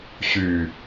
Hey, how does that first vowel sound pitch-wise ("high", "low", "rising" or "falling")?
low